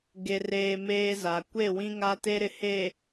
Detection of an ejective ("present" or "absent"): absent